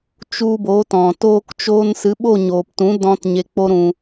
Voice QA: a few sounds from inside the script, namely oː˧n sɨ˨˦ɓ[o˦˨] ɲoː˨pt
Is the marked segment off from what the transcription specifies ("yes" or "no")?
no